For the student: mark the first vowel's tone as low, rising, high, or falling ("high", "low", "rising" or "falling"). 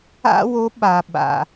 high